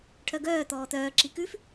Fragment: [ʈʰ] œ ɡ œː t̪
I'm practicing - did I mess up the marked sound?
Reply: no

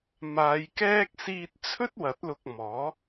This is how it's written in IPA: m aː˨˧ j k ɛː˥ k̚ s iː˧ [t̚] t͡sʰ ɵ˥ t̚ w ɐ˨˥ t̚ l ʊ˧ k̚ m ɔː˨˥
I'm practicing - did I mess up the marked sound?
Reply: no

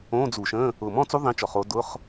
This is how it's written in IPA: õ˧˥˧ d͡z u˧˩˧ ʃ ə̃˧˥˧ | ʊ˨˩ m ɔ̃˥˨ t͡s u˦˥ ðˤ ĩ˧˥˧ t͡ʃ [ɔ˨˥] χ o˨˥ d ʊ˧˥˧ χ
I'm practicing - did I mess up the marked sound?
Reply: yes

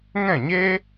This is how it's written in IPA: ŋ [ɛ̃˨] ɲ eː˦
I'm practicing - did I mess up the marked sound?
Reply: yes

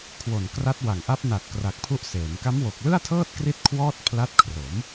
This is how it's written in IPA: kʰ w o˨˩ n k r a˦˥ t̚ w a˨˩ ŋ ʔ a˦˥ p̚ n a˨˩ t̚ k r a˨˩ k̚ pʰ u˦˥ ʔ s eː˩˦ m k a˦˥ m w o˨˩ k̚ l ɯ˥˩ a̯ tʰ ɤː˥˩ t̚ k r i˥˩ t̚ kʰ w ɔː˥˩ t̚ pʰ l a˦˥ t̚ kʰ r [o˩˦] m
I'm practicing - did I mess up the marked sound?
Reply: no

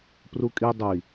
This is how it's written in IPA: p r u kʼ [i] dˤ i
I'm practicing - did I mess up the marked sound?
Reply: no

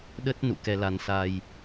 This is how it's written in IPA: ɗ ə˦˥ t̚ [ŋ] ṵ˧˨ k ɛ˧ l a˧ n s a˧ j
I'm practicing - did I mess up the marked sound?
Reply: yes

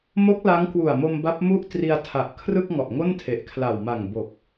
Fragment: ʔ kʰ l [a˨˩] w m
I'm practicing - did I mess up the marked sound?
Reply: no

